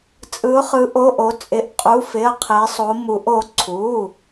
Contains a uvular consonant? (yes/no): yes